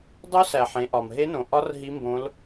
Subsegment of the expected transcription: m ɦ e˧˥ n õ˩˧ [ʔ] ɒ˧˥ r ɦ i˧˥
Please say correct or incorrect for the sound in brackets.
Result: correct